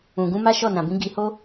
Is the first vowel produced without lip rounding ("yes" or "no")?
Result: no